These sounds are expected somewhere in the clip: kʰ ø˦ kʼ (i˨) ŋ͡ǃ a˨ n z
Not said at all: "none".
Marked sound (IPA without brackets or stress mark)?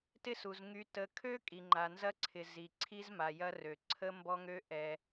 i˨